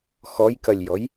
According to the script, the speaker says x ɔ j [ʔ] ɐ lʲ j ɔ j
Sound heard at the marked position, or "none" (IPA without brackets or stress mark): k